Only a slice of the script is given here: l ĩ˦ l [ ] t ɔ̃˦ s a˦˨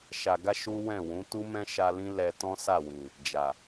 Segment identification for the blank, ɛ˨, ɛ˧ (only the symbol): ɛ˧